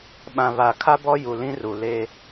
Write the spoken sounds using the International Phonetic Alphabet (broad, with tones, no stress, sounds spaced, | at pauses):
ɓ ã˨ β a˨ kʰ a˦ b ɔ˦ j u˨ l ĩ˦ r u˨ l e˦